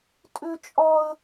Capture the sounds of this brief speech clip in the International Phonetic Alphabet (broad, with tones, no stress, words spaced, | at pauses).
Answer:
tʼʏ˥t͡ʃʼɒ˥ə̯